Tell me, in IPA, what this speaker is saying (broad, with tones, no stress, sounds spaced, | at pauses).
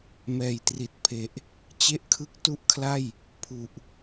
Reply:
m ɛː˨˩ j t r i˨˩ t̚ pʰ e˨˩ ʔ | t͡ɕ e˥˩ ʔ kʰ ɯ˥˩ k̚ t u˥˩ ʔ kʰ l a˥˩ j | pʰ u˨˩ ʔ